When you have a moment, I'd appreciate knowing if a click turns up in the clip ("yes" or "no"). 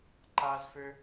yes